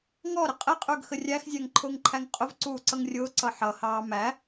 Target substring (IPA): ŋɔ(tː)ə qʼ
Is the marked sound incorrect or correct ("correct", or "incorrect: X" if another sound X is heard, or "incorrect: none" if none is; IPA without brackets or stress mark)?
incorrect: ɾ